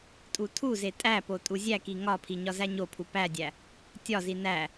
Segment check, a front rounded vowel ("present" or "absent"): absent